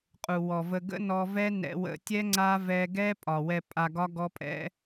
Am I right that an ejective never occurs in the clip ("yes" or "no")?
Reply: no